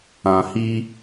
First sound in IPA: ã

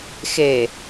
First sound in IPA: x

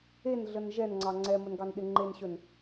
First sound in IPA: e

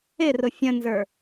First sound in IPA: ɪ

